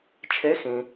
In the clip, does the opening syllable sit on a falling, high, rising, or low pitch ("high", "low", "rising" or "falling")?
rising